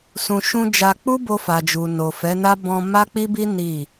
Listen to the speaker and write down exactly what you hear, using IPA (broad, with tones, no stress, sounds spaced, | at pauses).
s ũ˨ ʃ ũ˧ d͡ʒ a˧ k͡p u˦ b o˧ f a˨ d͡ʒ u˨ n o˨ f ɛ˨˦ n a˦ b ɔ̃˧ m a˦ k͡p i˦ b i˦ n i˦˨